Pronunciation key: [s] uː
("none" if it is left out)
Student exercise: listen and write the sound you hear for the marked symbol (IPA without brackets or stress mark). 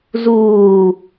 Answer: z